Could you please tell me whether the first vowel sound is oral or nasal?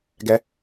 oral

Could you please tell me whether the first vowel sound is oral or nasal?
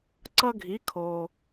oral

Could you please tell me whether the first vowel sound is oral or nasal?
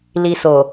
oral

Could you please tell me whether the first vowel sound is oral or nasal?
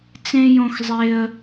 nasal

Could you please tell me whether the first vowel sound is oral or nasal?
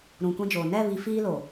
nasal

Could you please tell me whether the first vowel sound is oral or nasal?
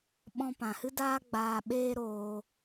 nasal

